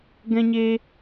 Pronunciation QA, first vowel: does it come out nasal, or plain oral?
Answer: nasal